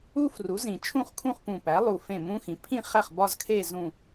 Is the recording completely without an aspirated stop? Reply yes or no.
no